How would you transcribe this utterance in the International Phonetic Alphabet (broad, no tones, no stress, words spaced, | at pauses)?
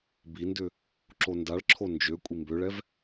bindʏ | ǁondaɭǁʰo nd͡ʒø kʷʼimbøɭɛv